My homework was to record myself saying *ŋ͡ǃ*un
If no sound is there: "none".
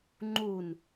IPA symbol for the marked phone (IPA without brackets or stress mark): ŋ͡ǃ